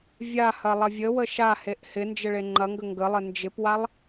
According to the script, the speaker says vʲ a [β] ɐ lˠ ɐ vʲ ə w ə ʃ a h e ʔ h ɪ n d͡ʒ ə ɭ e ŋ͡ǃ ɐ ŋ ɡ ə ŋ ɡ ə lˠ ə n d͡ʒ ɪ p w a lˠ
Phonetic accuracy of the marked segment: incorrect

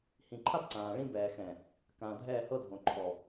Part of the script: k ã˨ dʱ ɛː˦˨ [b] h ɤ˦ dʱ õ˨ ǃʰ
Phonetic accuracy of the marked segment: incorrect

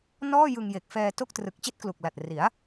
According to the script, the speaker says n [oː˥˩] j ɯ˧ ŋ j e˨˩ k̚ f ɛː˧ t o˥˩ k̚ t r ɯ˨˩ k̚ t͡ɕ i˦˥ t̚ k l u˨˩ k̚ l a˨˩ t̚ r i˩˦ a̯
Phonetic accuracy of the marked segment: incorrect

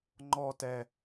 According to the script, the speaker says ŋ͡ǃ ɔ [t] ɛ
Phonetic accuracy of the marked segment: correct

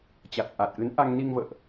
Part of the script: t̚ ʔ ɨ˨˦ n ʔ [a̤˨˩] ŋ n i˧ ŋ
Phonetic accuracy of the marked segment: incorrect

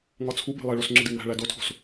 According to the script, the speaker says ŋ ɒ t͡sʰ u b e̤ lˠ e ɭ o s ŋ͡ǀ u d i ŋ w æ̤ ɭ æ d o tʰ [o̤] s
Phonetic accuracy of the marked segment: correct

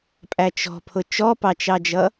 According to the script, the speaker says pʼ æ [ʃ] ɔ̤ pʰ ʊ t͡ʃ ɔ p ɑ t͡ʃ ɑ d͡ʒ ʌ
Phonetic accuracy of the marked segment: incorrect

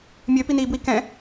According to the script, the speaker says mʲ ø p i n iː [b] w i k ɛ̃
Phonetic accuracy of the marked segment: correct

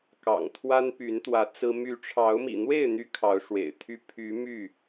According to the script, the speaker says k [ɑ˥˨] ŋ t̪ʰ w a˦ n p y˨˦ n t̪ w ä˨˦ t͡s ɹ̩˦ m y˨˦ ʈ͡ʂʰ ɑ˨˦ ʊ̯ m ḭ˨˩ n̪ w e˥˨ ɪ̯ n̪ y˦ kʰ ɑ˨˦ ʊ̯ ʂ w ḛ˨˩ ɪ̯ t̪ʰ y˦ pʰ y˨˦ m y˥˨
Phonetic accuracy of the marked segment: incorrect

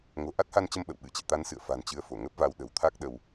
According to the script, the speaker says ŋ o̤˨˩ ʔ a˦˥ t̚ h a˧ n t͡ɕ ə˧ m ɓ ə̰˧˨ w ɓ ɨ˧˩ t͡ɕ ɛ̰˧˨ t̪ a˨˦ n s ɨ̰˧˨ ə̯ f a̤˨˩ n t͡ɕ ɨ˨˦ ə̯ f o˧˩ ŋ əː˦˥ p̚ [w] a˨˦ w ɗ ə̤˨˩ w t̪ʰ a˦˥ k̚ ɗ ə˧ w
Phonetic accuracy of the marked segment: incorrect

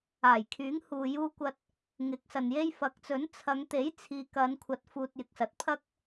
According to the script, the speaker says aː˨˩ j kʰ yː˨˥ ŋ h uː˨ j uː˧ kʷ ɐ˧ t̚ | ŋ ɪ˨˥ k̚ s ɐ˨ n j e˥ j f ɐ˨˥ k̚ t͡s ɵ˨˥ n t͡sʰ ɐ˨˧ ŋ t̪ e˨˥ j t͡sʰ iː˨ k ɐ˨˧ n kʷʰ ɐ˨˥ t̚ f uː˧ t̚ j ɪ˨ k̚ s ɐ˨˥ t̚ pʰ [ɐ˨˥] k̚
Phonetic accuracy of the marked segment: incorrect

